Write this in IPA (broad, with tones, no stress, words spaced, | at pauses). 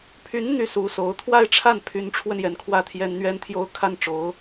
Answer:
pʰy˧˥n n̪y˥˩su˧˥so˧˥ʊ̯ t̪ʰwa˥˧ɪ̯ʈ͡ʂʰa˥˩npʰy˧˥nʈ͡ʂʰwə˧n jɛ˧˥nkʰwä˥t̪ʰjɛ˥n n̪ɥɛ˥˧nt̪ʰjo˥˧ʊ̯kʰa˥˩nʈ͡ʂo˧˥ʊ̯